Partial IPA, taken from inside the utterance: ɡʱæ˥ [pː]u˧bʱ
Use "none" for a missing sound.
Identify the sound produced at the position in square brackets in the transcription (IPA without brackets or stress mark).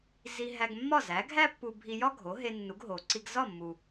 pː